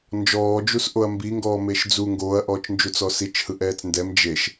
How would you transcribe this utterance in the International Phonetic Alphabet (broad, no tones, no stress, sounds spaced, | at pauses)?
n d͡ʒ ɔː d͡ʒ u s ʔ o ɐ̯ m b i ŋ ɡ ɔː m e ʃ d͡z u ŋ ɡ oː ɐ̯ ʔ ɔː t͡ʃ n d͡ʒ u t͡s ɔ s i t͡ʃ h ɯ ʔ ɛː t͡s n d ɛ m d͡ʒ e ʃ